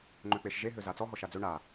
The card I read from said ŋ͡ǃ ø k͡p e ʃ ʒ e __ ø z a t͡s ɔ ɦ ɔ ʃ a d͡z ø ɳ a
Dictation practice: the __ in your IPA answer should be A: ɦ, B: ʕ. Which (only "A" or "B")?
A